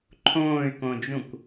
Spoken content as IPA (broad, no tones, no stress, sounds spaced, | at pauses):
ǃʰ õː y̯ k õ d͡ʒ ũ k